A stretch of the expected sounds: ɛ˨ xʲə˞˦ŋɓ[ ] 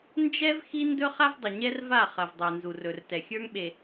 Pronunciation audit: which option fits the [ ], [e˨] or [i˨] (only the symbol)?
e˨